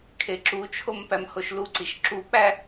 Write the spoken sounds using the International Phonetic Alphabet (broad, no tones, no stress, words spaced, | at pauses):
kʰeǁut͡ʃʰom pæmhoʃluǀiʃ ǁuk͡pæ